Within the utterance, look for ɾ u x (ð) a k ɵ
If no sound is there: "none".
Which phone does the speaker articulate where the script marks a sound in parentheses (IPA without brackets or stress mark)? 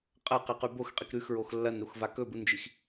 v